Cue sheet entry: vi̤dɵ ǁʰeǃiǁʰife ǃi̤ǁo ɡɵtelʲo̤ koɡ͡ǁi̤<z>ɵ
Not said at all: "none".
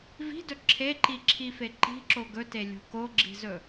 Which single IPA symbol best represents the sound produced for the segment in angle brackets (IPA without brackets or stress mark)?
z